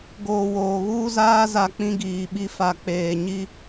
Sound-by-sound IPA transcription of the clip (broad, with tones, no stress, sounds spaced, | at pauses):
ɡ oː˨ w oː˨ ɣ uː˦ z aː˦ z a˦ k͡p ĩ˦ ɡ iː˨ ɓ i˦ f a˨ k͡p eː˨ ɲ i˦